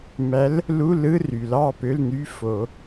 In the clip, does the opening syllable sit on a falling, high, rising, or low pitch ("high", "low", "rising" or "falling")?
rising